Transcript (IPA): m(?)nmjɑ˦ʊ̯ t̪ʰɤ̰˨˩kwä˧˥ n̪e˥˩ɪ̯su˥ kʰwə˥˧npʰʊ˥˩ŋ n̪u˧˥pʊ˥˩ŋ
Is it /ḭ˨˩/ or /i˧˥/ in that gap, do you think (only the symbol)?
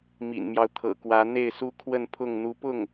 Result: ḭ˨˩